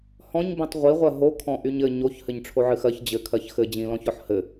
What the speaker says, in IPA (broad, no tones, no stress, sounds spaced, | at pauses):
h ɔ̃ ɲ b ĩ tˤ ʁʷ i ʁʷ ɜ ɦ o kʰ ɔ̃ ʔ y ɲ ɘ ɲ o ç h ɘ ɲ ʈ͡ʂʰ o ʕ ɨ x ɜ ç d͡ʑ ɘ kʰ ɜ ç x ɘ d͡ʑ ĩ l ɔ̃ ç ɔ ħ h ɘ